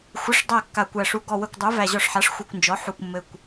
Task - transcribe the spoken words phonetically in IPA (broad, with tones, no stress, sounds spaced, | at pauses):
xʷ ɘ˩˥ ʂ dˤ æ˧˩ kː a˧˩ kʷ æ˧˩ ʂ u˧˩ ɡ ɔ˧˩ w ə˧˩ kʷ dˤ u˩˥ v æ˧˩ ʑ ɔ˧˩ ʂ ħ a˩˥ ʂ xʷ ɛ˧˩ kʷ n d͡ʒ ɔ˩˥ ħ u˧˩ kʷ mː ɘ˧˩ kʷ